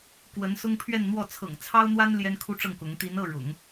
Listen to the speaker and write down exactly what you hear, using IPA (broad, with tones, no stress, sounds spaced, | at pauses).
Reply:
k w ə˧˥ n s ʊ˥ ŋ pʰ ɥ ɛ˥˧ n n̪ w ɔ˥˩ t͡sʰ ɤ̰˨˩ ŋ t͡sʰ ɑ˥ ʊ̯ n̪ w a˥ n l j ɛ˥ n kʰ u˥ ʈ͡ʂ ɤ˥˩ ŋ k ʊ˧˥ ŋ t̪ i˧˥ n ɤ˥˩ ɻ ʊ̰˨˩˦ ŋ